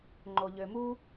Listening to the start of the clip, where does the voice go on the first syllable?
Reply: low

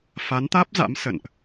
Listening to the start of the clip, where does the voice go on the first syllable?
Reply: rising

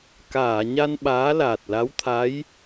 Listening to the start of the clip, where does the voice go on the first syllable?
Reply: low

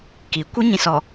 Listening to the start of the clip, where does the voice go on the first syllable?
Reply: rising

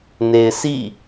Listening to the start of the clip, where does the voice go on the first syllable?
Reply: low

